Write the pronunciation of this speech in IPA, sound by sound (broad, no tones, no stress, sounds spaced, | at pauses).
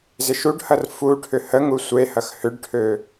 z ɪ ʃ u ɖ h ɐ r f u ʈʰ ʏ h ə ŋ u sʷ e h ɐ x h ʏ ɖ ʈʰ ø